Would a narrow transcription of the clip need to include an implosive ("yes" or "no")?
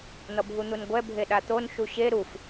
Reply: yes